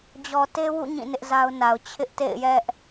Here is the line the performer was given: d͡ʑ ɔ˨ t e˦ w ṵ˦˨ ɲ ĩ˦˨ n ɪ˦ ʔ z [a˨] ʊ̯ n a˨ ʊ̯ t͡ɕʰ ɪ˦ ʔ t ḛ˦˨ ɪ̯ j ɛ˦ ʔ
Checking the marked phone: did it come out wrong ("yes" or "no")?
yes